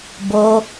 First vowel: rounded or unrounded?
rounded